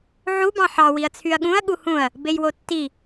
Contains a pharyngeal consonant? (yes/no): yes